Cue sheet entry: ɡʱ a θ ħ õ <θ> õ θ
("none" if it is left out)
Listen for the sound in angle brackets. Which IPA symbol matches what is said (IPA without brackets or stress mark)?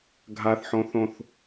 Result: θ